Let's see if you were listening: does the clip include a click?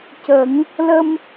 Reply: no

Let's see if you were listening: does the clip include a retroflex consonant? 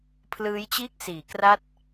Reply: no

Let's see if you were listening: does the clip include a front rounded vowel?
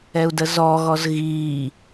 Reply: no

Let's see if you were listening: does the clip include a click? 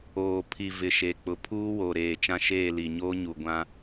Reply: no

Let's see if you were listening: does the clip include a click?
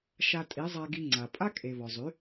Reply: yes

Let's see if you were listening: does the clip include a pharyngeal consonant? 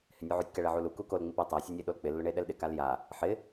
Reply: yes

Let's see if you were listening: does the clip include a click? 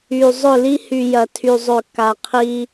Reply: no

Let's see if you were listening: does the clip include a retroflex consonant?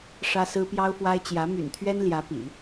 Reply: yes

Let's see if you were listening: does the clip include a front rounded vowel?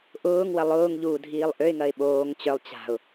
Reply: yes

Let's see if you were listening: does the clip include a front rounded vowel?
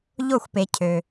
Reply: yes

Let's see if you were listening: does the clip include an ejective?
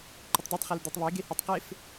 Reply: no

